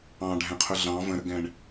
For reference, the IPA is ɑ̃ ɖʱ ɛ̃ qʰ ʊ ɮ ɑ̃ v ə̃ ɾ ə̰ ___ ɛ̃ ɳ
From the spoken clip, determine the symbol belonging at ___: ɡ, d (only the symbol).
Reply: ɡ